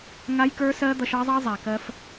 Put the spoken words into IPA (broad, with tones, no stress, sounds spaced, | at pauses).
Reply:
ŋ a˦ j k ə˞˦ s ɜ˦ d̪ ʌ˧ ʃ ɑ˦ zˤ ɑ˦ zˤ a˨ k ɜ˧ f